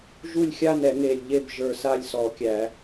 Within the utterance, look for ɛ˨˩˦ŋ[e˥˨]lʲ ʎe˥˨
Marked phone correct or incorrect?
incorrect